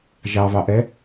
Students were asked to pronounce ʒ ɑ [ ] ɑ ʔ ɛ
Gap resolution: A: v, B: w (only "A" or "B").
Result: A